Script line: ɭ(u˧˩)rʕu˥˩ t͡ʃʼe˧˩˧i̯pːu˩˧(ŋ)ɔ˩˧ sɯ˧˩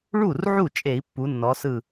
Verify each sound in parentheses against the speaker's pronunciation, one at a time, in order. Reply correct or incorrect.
incorrect, incorrect

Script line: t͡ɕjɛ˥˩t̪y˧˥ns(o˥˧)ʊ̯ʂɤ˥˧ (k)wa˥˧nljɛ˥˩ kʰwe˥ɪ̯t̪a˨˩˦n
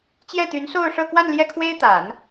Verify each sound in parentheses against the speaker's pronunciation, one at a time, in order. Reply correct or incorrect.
correct, correct

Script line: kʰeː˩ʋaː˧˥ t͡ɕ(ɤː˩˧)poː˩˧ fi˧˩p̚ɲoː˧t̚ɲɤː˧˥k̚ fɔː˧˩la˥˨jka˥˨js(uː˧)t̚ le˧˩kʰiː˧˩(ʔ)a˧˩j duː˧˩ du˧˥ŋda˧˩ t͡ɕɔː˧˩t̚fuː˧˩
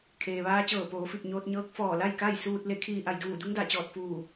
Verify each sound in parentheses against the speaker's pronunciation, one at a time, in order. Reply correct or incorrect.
incorrect, correct, correct

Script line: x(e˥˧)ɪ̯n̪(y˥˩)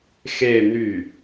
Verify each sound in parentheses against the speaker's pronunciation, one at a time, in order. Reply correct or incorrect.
correct, correct

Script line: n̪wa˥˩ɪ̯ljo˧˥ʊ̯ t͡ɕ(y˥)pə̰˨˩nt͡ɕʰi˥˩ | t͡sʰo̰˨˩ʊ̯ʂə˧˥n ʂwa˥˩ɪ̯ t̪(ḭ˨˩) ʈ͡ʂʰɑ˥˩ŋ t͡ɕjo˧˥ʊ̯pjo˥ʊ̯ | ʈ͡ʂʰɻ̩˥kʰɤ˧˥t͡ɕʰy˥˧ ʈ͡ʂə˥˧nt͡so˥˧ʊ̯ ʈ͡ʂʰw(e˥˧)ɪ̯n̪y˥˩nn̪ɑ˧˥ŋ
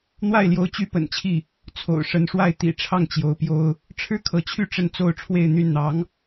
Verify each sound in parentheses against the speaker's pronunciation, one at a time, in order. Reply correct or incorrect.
correct, correct, correct

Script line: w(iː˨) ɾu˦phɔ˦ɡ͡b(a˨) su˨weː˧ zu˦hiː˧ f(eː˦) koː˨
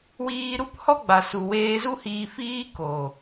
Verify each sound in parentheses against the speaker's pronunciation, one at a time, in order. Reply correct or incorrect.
incorrect, correct, incorrect

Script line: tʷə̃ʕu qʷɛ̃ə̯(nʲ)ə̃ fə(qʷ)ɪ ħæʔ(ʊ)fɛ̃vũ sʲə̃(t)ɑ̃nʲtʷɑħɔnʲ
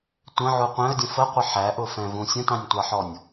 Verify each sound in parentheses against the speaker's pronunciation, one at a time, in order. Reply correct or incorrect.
incorrect, correct, correct, correct

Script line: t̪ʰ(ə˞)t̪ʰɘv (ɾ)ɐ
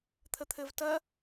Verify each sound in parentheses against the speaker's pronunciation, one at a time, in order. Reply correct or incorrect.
incorrect, incorrect

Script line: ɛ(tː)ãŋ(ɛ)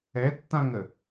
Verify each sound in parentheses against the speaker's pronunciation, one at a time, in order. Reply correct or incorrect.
correct, incorrect

